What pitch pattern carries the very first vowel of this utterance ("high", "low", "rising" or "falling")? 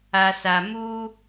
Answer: low